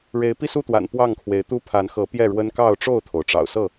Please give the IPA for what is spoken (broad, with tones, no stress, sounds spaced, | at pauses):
ɻ e˨˦ ɪ̯ p i˥˨ s u˥˨ t̪ w a̰˨˩ n p w ɑ˥˨ ŋ kʰ w e˨˦ ɪ̯ t̪ u˦ pʰ a˨˦ n x ɤ˨˦ p j ɛ˥˨ ɻ w ə˦ n k ɑ˥˨ ʊ̯ ʈ͡ʂ o˥˨ ʊ̯ t̪ʰ o˩ ʊ̯ ʈ͡ʂ ɑ̰˨˩ ʊ̯ s ɤ˥˨